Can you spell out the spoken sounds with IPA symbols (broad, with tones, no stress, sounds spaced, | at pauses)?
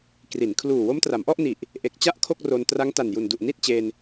k r i˩˦ n kʰ l uː˨˩ w o˦˥ m t r a˩˦ m ʔ ɔ˥˩ ʔ n i˨˩ ʔ | ʔ e˨˩ k̚ t͡ɕ a˥˩ ʔ kʰ o˥˩ k̚ r o˧ n t r a˦˥ ŋ t a˨˩ n j u˨˩ n d u˨˩ ʔ n i˥˩ t̚ t͡ɕ e˧ n